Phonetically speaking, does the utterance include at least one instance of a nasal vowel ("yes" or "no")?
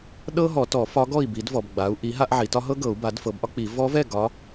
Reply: no